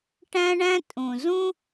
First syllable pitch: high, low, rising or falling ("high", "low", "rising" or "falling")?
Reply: high